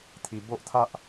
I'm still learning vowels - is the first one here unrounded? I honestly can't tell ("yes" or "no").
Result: yes